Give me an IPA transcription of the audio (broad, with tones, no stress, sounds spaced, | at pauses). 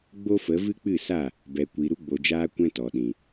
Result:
ɡ͡b o˦ f ə˨˦ v ɨ˦ k͡p ɨ˦˨ s a˦˨ | b ɛ˨ kʷ i˨ ɾ u˧ ɡ͡b o˨ d͡ʒ aː˧ kʷ ɛ̃˦ t ɔ˨ ɗ ĩ˨